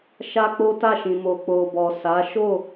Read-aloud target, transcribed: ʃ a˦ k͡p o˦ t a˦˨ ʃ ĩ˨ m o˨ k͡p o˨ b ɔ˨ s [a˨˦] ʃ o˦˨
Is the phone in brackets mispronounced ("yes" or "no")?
no